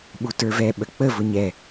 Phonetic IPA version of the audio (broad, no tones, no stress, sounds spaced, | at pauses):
ɓ u t ə˞ v ɛ ɓ ə k͡p ə v ʊ ɲ ɛ